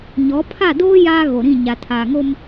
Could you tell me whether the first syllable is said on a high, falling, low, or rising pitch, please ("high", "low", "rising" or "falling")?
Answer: rising